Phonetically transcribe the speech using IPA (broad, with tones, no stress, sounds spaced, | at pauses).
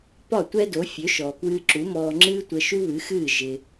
p ɒ˥˩ tʷ ɛ˥ d o˩˥ fʲ ø˩˥ ʃ ɔː˩ k w ɨː˧ ǁ u˩˥ m ɔː˧ ŋ͡ǁ ɨː˥ tʷ ə˧ ʃ u˥ β ɨ˩˥ x ɨː˥˩ ʒ ɪ˧